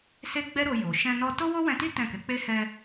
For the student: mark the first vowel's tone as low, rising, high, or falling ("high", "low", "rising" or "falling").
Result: high